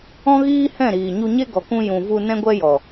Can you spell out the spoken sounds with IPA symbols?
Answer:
ɔ̃˦ ɣ iː˦ h ɛ̃˦˨ ɾ iː˨ ɲ u˧ ɲ e˦ ɡ ɔ˨ k ũ˧ j ũ˨ v u˧ n ɛ̃˦ ɡʷ ɛ˦ j ɔ˨

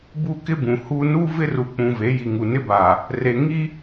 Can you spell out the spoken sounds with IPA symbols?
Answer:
b u˦ k ɪ˦ b ũ˨ h uː˦ n u˦ v ɪ˦ r u˨ k͡p ũ˨ v e˨˦ j i˨ ŋ u˨ n ɪ˦ b a˨ | r e˨ ŋ i˦

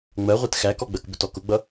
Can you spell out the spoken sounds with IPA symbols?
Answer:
ŋ͡m ɜ ʁʷ ɛ t x æ k ɔ ɡ͡b ɜ k b ʊ t ɔ k ʊ ɡ͡b ʌ

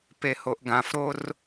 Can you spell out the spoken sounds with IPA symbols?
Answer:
p e h o ʔ ɡ ã f ɾ o r

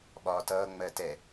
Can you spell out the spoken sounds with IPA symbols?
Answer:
ɓ ɒː t ʌː ŋ͡m ɜ t ɛ

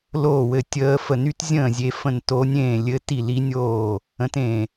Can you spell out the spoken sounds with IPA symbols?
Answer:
l oː˥˨ w ɘ˥˨ tʲ əː˦˥ f ə˥˨ n y˦˥ t zʲ ə̃ː˥˨ zʲ e˦˥ f ə̃˥˨ n t o˦˥ nʲ ẽː˥˨ lʲ ɘ˦˥ t i˥˨ l i˦˥ nʲ oː˥˨ | ə̃˦˥ t ẽ˥˨

